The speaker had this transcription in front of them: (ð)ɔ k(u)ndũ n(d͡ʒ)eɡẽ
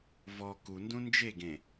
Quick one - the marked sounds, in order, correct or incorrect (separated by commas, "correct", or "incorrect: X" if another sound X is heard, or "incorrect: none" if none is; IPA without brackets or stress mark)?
incorrect: v, correct, correct